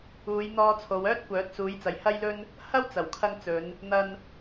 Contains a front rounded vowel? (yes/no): yes